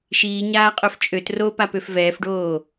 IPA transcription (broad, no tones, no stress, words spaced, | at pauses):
ʃiː ɲaːqʼœft͡ʃʼøt ropapøf vɛːfɖoː